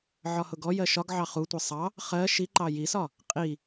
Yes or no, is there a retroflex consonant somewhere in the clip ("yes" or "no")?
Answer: no